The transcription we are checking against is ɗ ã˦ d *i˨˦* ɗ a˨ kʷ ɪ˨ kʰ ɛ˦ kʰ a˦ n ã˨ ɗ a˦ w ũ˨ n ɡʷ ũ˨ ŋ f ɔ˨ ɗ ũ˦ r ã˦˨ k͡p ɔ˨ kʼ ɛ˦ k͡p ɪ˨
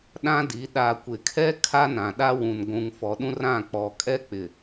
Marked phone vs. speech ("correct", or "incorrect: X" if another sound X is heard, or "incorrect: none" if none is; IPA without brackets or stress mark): correct